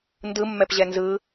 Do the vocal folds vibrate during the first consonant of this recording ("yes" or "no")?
yes